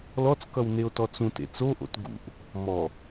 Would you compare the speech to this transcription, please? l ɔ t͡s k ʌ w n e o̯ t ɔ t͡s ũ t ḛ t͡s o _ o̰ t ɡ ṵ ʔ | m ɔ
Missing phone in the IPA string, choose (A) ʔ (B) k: A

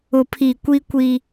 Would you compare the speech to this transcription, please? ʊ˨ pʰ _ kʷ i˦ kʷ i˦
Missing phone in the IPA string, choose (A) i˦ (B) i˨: B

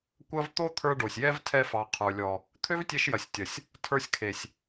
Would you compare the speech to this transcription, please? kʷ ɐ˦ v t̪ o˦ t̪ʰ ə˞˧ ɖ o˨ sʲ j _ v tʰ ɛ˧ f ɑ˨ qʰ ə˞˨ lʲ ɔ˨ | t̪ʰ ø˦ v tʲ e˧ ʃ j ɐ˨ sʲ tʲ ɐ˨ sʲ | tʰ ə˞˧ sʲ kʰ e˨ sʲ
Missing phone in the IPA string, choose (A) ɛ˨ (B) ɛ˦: B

